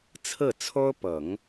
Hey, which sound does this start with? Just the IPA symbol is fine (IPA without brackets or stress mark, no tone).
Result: t͡sʰ